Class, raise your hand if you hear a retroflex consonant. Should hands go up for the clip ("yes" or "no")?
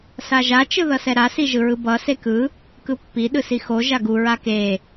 no